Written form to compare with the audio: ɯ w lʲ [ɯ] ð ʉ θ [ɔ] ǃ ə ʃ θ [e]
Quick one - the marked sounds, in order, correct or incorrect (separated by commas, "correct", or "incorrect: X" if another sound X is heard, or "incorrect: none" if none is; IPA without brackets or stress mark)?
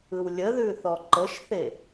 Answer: incorrect: ə, correct, correct